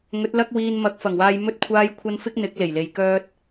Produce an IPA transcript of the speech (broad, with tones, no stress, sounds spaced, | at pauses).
ŋ ɵ˨˥ t̚ l ɐ˥ k̚ w iː˧ n m ɐ˨˥ k̚ f ɐ˨˩ ŋ w aː˧ j m ɵ˥ t̚ kʷʰ aː˥ j kʷʰ ɐ˥ n f ɪ˥ k̚ n̪ ɪ˨˥ k̚ l e˨˩ j l e˨˧ j k œː˥ t̚